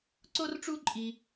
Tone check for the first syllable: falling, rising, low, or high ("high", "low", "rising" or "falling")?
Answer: high